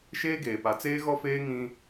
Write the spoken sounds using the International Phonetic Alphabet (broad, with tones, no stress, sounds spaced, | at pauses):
ʃ eː˦ ɡ eː˨ p a˨ t͡s eː˦ ɣ ɔ˦ f eː˦ ŋ ĩ˦